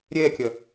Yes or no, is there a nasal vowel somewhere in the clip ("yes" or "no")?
no